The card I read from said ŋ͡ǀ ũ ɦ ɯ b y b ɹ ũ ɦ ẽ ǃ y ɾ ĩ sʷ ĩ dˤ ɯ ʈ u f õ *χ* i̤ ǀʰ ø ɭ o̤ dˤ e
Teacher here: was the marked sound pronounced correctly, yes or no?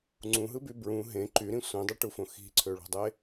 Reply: no